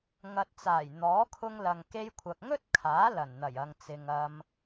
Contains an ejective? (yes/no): no